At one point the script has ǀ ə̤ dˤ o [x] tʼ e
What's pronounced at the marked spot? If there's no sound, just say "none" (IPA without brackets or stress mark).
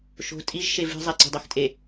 x